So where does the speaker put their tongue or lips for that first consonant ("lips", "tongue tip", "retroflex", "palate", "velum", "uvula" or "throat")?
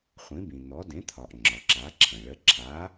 uvula